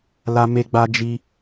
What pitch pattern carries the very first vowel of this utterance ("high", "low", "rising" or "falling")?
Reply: high